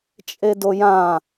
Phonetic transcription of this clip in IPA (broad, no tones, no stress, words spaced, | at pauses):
t͡ʃʼedojã